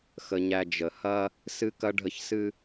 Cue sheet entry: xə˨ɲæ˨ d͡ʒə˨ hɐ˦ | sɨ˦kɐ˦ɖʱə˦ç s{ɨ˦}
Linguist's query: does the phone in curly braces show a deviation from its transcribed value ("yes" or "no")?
no